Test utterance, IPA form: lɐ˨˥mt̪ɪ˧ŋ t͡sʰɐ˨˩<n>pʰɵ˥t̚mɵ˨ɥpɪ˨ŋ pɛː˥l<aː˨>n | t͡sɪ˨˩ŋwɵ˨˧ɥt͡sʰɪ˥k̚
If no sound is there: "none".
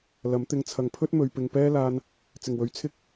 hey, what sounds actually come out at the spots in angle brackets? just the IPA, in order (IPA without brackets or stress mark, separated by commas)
ŋ, aː˧